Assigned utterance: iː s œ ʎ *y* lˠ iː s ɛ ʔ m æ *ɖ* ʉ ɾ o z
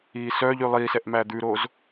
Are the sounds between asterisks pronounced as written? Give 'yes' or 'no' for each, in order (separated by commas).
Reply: yes, no